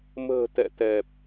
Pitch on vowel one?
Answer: low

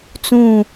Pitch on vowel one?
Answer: falling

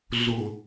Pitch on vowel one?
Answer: low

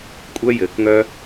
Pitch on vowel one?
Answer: high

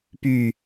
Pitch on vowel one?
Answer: falling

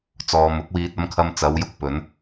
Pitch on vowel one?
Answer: low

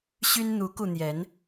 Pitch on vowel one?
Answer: high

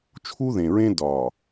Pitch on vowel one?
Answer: high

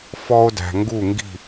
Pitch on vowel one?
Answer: high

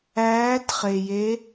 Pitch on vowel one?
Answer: rising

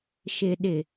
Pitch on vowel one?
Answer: low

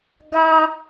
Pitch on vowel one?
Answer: high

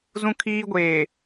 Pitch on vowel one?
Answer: high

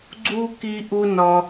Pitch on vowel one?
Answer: high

